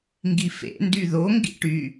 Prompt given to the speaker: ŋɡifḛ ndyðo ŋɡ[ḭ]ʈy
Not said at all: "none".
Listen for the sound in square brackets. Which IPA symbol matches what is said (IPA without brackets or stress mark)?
ḭ